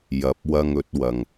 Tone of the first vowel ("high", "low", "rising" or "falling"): rising